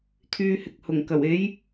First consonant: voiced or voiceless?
voiceless